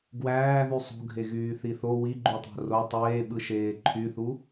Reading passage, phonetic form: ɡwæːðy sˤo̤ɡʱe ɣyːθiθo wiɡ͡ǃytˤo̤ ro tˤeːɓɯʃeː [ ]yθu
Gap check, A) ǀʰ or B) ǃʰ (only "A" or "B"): B